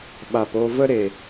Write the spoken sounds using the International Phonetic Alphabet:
ɓ a˨ p o˧ v ə˦ ɾ e˨

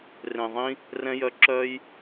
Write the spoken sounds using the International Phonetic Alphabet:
r ẽ˨ ðˤ ĩ˦ | r ɛ̃˦ j œ˧ ǁ œ˦ j

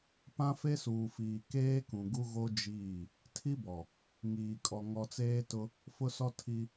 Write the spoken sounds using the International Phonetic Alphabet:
p ã˦ f e˦ s uː˨ f iː˨ k eː˦ k ũ˨ ɡ u˦ ɣ o˦ d͡ʒ iː˦˨ | tʰ i˦ b ɔ˨ | ŋ iː˨ kʼ ɔ˨ ŋ ɔ˨ t͡s eː˦ t ʊ˦ | f ʊ˦ s ɔ˦ tʰ i˦

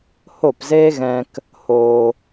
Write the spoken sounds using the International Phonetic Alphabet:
h o˦˨ p z eː˦ ɣ ɛ̃˧ k | h oː˧

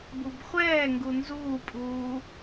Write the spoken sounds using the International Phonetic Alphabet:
b u b χʷ ɛː ŋ ɡ u n z uː pʼ uː

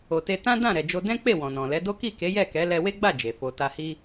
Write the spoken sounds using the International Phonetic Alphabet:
o˨ t e˧ t ã˦ d ã˦˨ ɾ ɛ˨ d͡ʒ o˧ d ɛ̃˦ k͡p e˦˨ w ɔ̃˨ n ɔ̃˨ l ɛ˨˦ d o˦ k i˦˨ k e˨˦ j ɛ˦˨ k ɛ˨˦ l ɛ˧ w e˦ ɡ͡b a˦˨ d͡ʒ e˨ f o˧ t a˧ h i˦

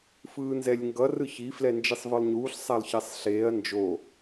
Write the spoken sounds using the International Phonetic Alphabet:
f ɯː n z ɛ lʲ ŋ ɡ ʌ r ɯ ç i f l ɛ n d͡ʒ i sˤ v ɯ lˠ ɲ uː ɬ sˤ a lˠ ç ɛ sˤ ɬ eː ɐ̯ n d͡ʒ oː

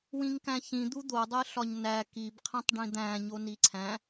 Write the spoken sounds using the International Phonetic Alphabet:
w ĩ ŋ k æ̃ ç ĩ d̪ u d̪ o dˤ e ɬ ɒ ɲ n æ k i b qʰ ĩ tˤ ɖ ĩ d̪ æ̃ ɲ o n i ǀʰ æ̃

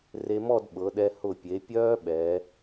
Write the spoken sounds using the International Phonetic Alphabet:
r e˧ m ɔ˥˧ d ɓ ɤ˩˧ ɗ ɛ˧ h ʊ˧˩ pʲ e˩˧ pʲ œː˥ ɓ ɛ˩˧

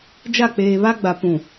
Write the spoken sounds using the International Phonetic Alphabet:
d͡ʒ a˦˨ k͡p eː˨ β a˦ ɡ͡b a˨ p ũ˨

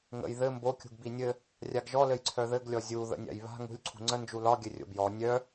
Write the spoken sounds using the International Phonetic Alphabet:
ŋ ə̰ j ð ɘ m b o kʲ ṳ ɡ b i nʲ ɘ | rʲ a ɡ ʒ ɔ l ɘ j ǀʰ œ ð ɘ ɡ lʲ ɔ zʲ u ð ə̰ nʲ a̰ j β a̤ ŋ ṳ lʲ ǀʰ ṳ ŋ͡ǀ ə n d͡ʒ u l ɒ ɡʲ ɘ rʲ o̰ b j ɔ nʲ œ

